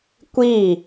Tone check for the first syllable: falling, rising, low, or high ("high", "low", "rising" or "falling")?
falling